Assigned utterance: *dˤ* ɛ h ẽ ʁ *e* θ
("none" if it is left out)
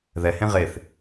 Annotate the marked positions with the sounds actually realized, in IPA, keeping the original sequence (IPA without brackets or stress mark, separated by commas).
ð, e